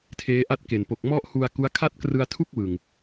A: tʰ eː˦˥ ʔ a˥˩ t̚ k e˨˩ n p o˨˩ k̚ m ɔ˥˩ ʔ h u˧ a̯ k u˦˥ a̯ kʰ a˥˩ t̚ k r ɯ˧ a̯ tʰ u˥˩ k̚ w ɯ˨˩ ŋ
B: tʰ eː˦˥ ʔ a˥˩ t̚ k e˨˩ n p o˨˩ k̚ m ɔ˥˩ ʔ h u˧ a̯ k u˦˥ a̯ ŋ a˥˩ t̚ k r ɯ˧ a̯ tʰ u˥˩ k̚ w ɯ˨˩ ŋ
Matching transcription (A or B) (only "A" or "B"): A